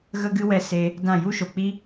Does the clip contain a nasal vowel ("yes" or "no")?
yes